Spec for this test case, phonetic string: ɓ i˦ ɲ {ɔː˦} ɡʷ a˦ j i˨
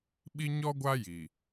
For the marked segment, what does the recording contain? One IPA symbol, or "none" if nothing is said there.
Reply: ɔ˦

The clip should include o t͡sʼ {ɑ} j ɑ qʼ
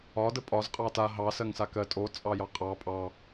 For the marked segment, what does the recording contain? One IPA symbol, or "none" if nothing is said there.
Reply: ɑ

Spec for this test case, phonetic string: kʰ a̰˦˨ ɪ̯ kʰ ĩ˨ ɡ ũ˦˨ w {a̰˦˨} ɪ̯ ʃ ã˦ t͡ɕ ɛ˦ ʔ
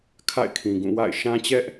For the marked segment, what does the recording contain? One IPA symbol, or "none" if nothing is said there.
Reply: a̰˦˨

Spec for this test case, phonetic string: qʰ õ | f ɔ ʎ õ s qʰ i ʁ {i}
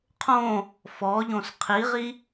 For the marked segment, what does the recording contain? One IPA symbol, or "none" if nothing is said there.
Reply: i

